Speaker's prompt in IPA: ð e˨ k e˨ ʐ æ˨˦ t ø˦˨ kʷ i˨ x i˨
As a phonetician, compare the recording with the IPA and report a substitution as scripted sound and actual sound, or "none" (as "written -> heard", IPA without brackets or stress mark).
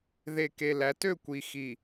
ʐ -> l